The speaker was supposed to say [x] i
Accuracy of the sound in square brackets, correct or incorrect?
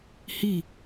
incorrect